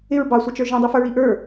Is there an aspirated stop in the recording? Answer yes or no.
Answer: no